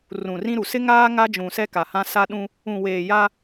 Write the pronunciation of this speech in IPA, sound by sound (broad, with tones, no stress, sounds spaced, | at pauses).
r ũ˨ r ĩ˦ ɾ u˨ s ɪ˦ ŋ aː˦ ŋ a˦ d͡ʒ ũ˨ s ɛ˦ k a˨ h ã˦ s a˦ ɗ ũ˦ | ũ˨ w eː˨ j a˦